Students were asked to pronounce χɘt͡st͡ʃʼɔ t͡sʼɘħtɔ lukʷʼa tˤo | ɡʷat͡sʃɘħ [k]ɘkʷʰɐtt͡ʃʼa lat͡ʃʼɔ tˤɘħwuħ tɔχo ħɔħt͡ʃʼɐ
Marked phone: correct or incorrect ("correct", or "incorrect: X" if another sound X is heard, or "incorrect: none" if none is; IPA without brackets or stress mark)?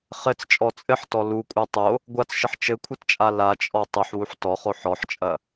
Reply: incorrect: t͡ʃ